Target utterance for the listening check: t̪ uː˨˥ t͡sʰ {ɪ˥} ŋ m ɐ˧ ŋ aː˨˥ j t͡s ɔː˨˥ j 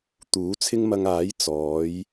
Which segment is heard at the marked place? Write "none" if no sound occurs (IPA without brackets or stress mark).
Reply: ɪ˥